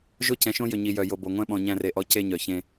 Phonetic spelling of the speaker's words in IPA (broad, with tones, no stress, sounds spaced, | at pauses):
ʒ o˦ c ɛ̃˨ ʃ õ˦ j ʏ˨ ɲ i˨ j œ˨ j o˨ b o˨ ŋʷ ɛ̃˦ ɓ ɔ̃˨ ɲ æ̃˦ r e˨ ʔ ɔ˦ c e˦ ɲ œ˨ ç ẽ˦